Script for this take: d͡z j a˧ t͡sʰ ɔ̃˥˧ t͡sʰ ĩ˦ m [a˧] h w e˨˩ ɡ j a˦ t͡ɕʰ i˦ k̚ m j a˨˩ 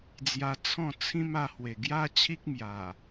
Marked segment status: correct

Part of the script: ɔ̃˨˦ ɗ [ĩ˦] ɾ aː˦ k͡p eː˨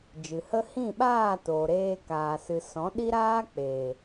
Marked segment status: incorrect: i˦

